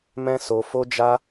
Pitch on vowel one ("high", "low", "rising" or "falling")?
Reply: high